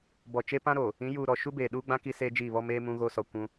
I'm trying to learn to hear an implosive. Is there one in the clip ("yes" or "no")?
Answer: yes